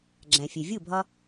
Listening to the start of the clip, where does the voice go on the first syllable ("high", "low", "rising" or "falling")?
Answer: low